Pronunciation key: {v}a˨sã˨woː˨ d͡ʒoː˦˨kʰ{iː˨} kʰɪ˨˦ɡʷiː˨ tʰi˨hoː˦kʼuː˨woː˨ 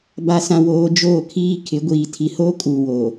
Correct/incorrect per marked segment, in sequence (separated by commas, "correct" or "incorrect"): incorrect, incorrect